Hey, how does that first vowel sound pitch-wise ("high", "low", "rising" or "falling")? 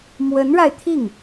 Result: rising